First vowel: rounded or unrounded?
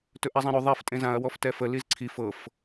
rounded